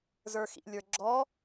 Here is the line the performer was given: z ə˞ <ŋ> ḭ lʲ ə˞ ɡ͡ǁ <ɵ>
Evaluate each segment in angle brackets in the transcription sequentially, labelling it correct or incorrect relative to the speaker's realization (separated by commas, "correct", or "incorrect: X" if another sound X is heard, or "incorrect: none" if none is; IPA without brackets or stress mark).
incorrect: x, incorrect: ɔ